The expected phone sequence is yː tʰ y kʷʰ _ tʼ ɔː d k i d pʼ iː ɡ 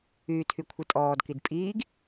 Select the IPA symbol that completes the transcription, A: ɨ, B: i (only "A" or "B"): A